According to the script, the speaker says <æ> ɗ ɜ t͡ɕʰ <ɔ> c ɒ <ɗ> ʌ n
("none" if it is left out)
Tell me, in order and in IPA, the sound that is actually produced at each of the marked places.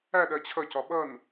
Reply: æ, ʌ, ɓ

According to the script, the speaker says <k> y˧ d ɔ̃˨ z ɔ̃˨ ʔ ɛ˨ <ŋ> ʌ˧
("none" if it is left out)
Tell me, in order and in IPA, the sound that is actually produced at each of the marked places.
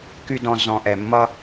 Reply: k, mː

